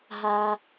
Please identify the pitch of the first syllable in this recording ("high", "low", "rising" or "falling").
high